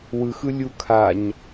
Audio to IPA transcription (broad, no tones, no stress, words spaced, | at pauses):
wɯxɯ lʲukʰaɲ